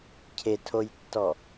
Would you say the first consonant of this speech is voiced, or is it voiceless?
voiceless